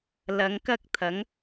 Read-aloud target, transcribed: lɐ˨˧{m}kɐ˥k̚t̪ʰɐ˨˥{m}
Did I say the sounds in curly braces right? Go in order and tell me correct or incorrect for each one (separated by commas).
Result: incorrect, incorrect